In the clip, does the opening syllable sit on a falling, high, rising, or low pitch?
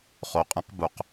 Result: low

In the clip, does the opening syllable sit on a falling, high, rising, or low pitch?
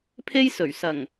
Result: high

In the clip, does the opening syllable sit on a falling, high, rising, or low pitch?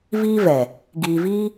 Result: high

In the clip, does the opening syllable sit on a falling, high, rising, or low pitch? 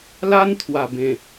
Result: high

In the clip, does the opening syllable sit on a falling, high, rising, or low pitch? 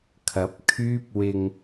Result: rising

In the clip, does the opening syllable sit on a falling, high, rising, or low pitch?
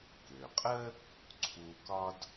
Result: low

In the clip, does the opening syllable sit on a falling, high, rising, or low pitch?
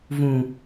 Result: low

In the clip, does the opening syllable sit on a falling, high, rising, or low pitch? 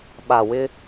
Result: low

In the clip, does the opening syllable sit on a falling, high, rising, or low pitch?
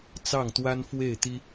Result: falling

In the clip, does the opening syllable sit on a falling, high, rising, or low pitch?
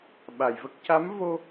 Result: low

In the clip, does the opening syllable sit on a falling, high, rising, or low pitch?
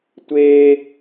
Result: high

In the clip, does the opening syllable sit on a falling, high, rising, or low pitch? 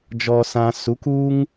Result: high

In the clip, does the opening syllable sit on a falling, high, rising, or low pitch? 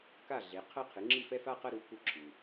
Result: falling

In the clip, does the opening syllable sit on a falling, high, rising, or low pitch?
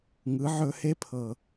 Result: rising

